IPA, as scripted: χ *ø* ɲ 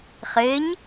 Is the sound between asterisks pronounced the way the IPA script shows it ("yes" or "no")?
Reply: no